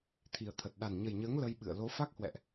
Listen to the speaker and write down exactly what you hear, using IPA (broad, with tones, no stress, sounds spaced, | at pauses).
t̪ʰ i˨˩ ə̯ t̪ʰ ə˨˩ t̚ ɗ a˨˩ n ɲ ə˨˩ j ɲ əː˨˦ ŋ l ə˧ j ɓ ɨ̰˧˨ ə̯ l o˨˦ f a˦˥ k̚ h w ɛ̰˧˨ ʔ